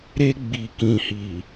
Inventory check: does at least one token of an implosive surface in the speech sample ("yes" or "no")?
no